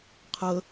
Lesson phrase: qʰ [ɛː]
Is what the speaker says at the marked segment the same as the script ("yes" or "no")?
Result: no